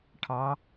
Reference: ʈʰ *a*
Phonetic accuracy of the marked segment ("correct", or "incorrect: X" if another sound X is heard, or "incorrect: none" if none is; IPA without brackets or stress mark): incorrect: ɑ